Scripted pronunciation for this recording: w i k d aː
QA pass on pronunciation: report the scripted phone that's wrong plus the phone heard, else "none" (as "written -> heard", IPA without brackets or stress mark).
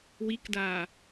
none